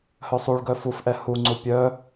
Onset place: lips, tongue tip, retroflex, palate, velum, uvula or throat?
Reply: throat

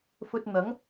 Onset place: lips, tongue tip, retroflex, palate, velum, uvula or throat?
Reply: lips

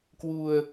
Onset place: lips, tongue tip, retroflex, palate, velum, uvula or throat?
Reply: velum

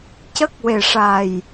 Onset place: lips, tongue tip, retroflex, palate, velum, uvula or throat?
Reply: palate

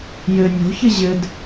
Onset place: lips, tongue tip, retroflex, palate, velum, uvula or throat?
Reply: palate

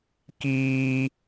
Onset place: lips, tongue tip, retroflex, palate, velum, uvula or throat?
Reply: velum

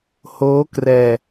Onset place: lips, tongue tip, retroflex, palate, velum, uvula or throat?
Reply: throat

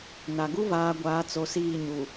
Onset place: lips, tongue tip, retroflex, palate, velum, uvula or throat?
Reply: tongue tip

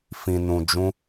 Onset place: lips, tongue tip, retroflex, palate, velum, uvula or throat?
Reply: lips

